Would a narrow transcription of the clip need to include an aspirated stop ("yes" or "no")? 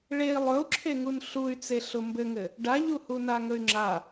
yes